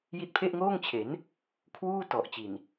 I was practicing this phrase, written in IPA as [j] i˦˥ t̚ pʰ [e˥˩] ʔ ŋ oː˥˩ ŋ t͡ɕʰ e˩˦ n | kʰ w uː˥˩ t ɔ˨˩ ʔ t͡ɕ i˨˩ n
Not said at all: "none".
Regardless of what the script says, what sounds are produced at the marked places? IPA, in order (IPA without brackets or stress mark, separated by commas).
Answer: j, e˥˩